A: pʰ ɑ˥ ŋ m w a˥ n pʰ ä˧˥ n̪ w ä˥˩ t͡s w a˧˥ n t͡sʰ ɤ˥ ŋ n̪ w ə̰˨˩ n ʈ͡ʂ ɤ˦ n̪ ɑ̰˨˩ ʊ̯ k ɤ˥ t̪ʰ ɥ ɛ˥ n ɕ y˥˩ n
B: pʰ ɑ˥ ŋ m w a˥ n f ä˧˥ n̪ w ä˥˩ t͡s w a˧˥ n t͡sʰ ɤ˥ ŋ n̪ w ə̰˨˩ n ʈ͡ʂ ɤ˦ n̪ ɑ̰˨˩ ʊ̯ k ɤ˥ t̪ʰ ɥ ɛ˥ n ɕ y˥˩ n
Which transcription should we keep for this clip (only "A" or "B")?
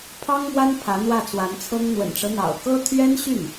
A